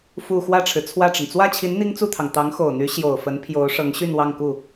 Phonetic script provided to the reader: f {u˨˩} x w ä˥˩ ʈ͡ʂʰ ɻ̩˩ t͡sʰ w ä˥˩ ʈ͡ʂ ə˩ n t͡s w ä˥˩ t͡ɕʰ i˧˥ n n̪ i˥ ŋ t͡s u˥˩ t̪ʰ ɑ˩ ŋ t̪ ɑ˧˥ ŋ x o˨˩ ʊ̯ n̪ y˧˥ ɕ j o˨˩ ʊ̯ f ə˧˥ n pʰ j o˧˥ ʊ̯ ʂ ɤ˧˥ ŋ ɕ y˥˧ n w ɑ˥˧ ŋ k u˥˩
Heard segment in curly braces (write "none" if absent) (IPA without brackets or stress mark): u˨˩